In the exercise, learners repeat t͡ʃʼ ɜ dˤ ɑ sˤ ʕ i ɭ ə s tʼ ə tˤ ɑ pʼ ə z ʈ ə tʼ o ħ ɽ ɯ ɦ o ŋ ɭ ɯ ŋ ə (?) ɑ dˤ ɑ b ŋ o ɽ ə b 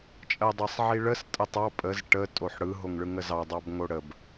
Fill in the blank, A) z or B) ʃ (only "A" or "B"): A